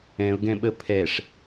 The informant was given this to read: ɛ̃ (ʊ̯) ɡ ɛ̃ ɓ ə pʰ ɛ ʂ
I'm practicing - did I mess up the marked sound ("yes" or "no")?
no